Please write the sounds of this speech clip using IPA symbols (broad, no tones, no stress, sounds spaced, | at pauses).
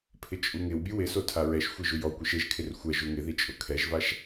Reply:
pʰ ɪ t͡ʃʼ u ŋ ɪ w bʲ u w ɪ s o tʰ a ɹ ɛ ʃ xʷ i ʒ u j ɔ kʷ i ʃ e ʒ kʰ ɪ r xʷ ɛ ʒ u ŋ ɪ ð i t͡ʃʼ ʊ kʰ ɛ ʒ v a ʃ